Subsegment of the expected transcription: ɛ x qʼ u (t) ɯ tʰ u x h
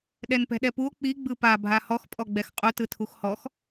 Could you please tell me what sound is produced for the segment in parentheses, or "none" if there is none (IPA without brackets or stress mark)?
t